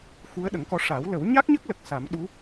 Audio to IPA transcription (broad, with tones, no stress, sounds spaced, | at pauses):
x u˧˥ ə̯ ɗ ə˨˩˦ ŋ k ɔ˧ ʂ a˨˩˦ w l ə˨˩˦ w ɲ a˦˥ k̚ ɲ ə˦˥ k̚ l ə˨˩ k̚ s a˨˩˦ m ɗ u˧˥